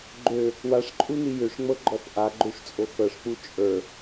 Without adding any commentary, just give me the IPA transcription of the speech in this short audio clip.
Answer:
ɡ͡ǃ ø | w a ʂ ǃʼ u n i j ʏ ʂ ŋ͡m ɤ ɡ͡ǃ ɔ f ʔ a ɡ͡ǃ ø ʂ t͡sʼ o x ɤ ʂ k͡p u t͡ʃʼ ə˞

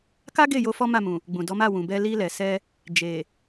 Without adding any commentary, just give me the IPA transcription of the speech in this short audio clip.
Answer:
k a˦ ɡ e˦˨ j o˧ f ɔ˦ m a˦˨ m ũ˨ | ɡ͡b ũ˨ d ɔ˨˦ m a˦˨ w ũ˨ b ɛ˧ l i˧ l ɛ˨ s ɛ˧ | d͡ʒ e˨

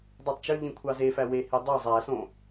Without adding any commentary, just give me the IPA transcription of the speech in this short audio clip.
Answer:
dˤ ø tˤ t͡ʃ ø ʎ ĩ kʷʰ ɑ z e f æ w e h i dˤ ɯ zˤ æ s õ

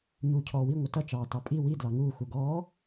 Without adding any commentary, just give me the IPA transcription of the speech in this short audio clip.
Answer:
ɲ uː cʰ ɔː w i ŋʷ ɪ t ʌ t͡ʃ ɑː t ɑ pʼ i w i d l ɑ ŋ uː x u ɡ ɔː

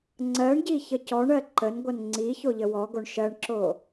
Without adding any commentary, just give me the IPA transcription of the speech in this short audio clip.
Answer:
ŋ͡ǀ ɜ ɳ ɟ i ç ə c ɔ ɳ ɜ ǃ ə n ɡʷ ʌ n ŋ͡ǀ i ç o ʎ ə w ɔ ɡ o ɳ ʃ ɜ ɳ ǁ o

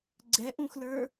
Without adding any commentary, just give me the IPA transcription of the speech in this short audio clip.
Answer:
ɡ͡ǀ ɛ ʔ ũ x l ə˞

